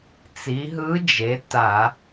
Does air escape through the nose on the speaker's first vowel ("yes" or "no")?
no